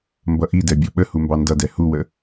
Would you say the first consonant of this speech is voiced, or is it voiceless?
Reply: voiced